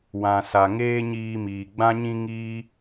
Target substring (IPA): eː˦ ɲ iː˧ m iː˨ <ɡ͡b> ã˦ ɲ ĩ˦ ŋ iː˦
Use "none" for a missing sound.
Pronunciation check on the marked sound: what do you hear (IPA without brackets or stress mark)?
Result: ɡ͡b